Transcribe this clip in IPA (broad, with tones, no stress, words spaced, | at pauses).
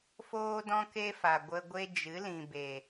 foː˦dɔ̃˦ke˦fa˨ ɡʷə˧ɡʷe˦ d͡ʒɨ˨˦lĩ˨be˨